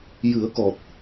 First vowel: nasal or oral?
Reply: oral